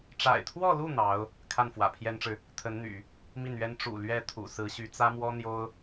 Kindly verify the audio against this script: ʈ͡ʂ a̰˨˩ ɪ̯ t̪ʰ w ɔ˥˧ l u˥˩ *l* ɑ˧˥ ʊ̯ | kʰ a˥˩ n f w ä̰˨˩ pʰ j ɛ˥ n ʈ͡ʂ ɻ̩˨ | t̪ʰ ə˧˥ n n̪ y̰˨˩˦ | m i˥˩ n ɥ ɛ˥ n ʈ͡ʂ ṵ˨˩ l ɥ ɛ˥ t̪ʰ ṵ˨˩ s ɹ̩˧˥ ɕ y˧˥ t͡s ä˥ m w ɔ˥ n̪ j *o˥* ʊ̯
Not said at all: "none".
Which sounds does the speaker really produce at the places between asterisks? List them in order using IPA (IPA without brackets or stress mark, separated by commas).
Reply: n̪, o˥